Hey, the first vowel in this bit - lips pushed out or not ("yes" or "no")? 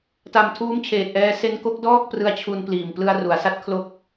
no